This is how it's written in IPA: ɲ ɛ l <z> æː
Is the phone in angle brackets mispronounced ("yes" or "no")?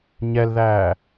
yes